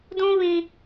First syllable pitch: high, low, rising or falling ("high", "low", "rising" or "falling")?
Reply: high